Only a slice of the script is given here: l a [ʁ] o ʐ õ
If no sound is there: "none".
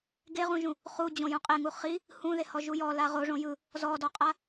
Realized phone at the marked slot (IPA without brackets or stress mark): ʁ